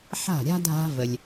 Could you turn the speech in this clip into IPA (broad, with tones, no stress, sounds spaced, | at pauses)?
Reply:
ħ a̤˥˩ ɾʲ a̤˥ dʱ a̤˥ v ə˩ lʲ